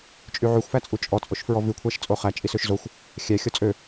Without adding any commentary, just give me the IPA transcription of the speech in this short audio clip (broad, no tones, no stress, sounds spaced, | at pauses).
t͡ʃʼ y ʕ y xʷ f æ t͡sʼ u t͡ʃʼ ɔ t͡sʼ o ʃ f ɹ ɔ v ʉ kʷʰ æ ʃ t͡sʼ o χ æ t͡ʃʼ i s ø ʃ z o xʷ | xʲ æ xʲ ɔ t͡sʼ ø